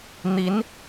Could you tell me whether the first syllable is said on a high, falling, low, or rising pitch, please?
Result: rising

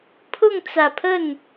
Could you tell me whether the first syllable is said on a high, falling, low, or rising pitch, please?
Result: falling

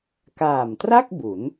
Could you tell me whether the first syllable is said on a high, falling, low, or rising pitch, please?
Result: low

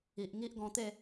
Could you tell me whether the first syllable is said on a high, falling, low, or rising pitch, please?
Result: low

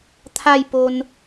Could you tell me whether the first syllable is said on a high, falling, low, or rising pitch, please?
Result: falling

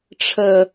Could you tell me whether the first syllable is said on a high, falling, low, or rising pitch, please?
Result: high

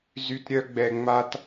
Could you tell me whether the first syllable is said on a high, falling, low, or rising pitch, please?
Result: high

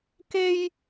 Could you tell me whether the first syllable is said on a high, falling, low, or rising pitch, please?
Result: high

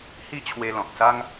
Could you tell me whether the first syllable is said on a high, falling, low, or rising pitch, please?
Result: high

